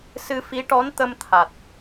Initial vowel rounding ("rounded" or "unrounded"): unrounded